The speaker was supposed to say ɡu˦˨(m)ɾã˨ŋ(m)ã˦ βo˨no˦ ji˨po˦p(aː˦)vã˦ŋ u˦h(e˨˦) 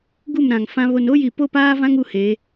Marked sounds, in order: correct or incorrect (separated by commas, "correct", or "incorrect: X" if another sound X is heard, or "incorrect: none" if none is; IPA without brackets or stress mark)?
correct, incorrect: f, correct, correct